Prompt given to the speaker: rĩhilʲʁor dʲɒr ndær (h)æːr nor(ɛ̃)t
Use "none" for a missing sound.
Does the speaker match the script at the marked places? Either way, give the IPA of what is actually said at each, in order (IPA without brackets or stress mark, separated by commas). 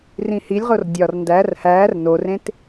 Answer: h, ẽ